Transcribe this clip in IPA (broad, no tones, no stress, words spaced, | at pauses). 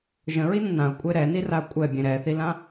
ʒə̃ɹinə̃ nãʊ̯kʷʼe ɾɛniraʊ̯ kʷʼɛbʲẽ ɾɛθilã